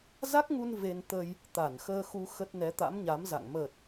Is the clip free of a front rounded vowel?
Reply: yes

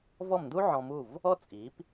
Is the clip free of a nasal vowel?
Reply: no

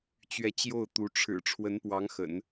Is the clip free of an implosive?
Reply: yes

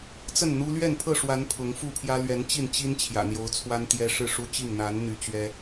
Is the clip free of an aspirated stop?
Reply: no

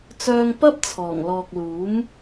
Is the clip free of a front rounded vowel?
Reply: no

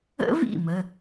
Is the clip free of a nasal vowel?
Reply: yes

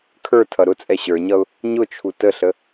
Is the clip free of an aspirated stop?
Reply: no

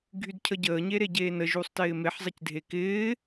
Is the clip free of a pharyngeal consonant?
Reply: no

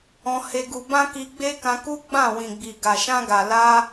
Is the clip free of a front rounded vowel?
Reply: yes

